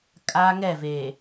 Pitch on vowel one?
high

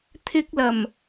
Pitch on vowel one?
high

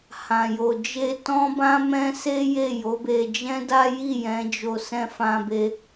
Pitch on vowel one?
low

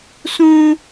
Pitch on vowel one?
high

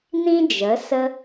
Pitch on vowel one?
high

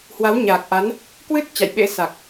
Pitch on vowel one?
rising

